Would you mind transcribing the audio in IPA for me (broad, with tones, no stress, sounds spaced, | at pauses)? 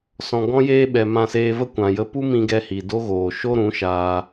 s ɔ̃˨ ɡ ɔ̃˦ j eː˦ ɓ ɛ˨ m ã˧ s eː˧ v ə˦ kʷ ã˨ j ə˧ p u˦ m ĩ˧ ɡ ɛ˧ h i˨ d o˦ ɣ oː˨ ʃ o˦ ɾ ũ˨˦ ʃ aː˦